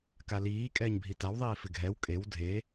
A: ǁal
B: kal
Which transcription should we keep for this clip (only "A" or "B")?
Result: B